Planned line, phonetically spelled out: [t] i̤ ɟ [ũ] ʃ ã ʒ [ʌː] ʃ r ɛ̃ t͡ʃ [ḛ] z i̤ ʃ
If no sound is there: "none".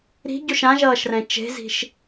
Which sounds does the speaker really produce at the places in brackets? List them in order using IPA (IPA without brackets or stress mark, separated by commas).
ɾ, u, ʌː, e̤